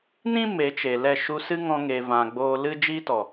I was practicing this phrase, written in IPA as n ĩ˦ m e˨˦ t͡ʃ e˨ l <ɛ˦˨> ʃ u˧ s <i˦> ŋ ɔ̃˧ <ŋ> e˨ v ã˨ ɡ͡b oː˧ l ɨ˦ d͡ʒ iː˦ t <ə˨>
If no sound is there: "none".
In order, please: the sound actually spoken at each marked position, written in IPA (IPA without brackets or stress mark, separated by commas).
ɛ˦˨, ɨ˦, ŋ, ɔ˨